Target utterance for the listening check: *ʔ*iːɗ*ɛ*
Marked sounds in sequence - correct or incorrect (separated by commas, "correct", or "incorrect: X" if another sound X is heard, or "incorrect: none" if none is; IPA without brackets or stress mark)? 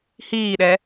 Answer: incorrect: h, correct